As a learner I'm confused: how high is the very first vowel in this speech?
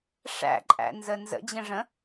low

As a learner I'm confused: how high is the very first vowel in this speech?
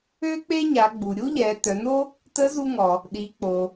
mid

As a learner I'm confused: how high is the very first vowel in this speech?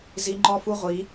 high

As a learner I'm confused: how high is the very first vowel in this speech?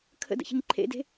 mid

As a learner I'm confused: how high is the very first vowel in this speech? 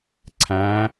low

